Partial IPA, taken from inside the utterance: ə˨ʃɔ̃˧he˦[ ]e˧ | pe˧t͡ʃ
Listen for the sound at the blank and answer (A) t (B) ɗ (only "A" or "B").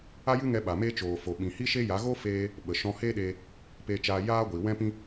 B